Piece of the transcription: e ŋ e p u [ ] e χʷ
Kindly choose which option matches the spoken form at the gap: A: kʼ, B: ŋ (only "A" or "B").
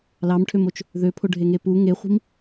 B